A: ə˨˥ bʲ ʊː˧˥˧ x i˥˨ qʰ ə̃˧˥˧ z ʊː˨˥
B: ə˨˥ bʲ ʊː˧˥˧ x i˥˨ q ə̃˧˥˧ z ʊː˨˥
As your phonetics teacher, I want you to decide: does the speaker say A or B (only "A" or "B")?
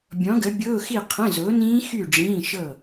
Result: A